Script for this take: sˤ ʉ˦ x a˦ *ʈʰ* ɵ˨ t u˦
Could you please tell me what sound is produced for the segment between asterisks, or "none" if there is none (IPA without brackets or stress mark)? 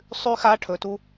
ʈʰ